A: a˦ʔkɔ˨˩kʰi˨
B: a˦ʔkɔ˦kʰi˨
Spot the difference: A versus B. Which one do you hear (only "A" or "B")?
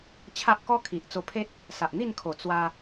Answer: B